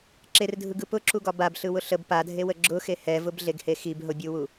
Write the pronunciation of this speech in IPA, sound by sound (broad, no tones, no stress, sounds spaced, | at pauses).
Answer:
ǁ e r dʱ ɯ ɡ ɯ p ʊ ǁ u ɡ ɒ b a b ɬ ɯ w ʊ ɬ ə b p a dʱ e w ə ɡ͡ǁ ʊ x e h ɛ v ʊ b ɮ e ɡ h e x i b ɦ ʊ bʲ u w u